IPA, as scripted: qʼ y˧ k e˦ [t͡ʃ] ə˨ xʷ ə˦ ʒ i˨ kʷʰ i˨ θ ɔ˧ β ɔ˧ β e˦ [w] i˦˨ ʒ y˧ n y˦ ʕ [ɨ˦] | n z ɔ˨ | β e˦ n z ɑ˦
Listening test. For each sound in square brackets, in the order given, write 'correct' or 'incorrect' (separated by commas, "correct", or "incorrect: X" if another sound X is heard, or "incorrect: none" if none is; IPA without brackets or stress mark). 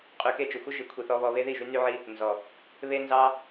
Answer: correct, incorrect: ð, incorrect: i˦